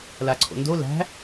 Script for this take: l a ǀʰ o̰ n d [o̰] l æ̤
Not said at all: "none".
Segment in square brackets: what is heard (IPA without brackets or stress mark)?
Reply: o